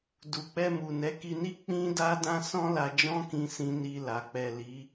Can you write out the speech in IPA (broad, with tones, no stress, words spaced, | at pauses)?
du˨k͡pɛ˧ mu˨ nɛ˨˦ki˧ni˦ k͡pĩ˦da˦ dã˦sɔ̃˦la˧ d͡ʒɔ̃˦kĩ˧sĩ˧ ni˧la˨ k͡pɛ˨ li˨˦